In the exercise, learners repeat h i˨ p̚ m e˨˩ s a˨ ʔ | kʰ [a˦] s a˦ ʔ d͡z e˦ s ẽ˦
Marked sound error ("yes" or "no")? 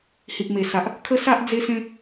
yes